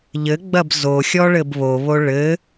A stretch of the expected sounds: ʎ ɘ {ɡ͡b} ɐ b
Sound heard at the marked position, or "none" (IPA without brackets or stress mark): ɡ͡b